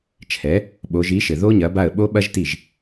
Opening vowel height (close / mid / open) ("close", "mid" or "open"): mid